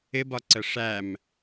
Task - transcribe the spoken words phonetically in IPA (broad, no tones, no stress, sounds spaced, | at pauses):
ɪ b ɒ ǀ ə ʂ æ m